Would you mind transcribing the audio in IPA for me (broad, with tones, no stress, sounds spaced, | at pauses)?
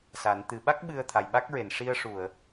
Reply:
s a˨˩˦ n t̪ ɨ˨˩˦ ɓ a˦˥ k̚ ɓ ɨ˧ ə̯ t̪ʰ a˨˩ j ɓ a˦˥ k̚ ɹ e˨˩˨ n ʂ i˧ ə̯ ʂ u˨˩˨ ə̯